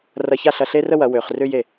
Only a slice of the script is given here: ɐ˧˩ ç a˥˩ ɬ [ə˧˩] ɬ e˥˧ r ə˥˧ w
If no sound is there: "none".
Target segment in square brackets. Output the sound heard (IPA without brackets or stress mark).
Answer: ɐ˧˩